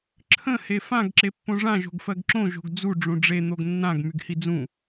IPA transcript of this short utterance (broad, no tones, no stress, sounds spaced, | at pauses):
ǁʰ ə̃ h e f ã ɡ ǁ e pː õ ʐ ã ʒ o̤ ɡ f ɜ ɡ ǁ õ ʒ o̤ ɡ d͡z u ɖ͡ʐ ũ ɖ͡ʐ e n̪ o ɡ nː ã ɡ m y ɡ h i d͡z ũ